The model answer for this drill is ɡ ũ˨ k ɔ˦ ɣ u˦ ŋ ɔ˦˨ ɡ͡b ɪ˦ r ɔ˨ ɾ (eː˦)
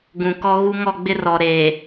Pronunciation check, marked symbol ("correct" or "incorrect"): incorrect